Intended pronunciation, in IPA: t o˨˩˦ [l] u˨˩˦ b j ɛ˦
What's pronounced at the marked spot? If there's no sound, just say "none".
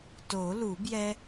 l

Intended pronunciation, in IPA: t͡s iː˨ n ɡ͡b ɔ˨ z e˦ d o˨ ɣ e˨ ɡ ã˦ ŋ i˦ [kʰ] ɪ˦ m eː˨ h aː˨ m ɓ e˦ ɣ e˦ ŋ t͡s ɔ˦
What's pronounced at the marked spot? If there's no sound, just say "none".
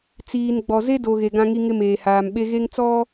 ŋ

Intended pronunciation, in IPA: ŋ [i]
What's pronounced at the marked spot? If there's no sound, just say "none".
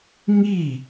i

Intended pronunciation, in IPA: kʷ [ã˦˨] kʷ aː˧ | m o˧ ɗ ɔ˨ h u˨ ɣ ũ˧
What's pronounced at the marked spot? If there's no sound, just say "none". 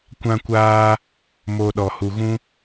ã˧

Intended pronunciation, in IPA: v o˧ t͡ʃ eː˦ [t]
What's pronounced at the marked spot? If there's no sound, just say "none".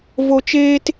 t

